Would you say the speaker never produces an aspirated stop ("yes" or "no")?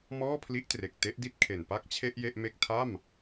no